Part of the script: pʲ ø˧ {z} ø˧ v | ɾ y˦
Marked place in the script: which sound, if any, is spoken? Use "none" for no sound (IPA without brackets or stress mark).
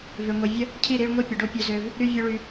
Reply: z